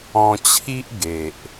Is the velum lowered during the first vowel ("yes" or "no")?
yes